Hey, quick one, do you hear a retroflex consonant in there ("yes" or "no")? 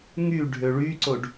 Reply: yes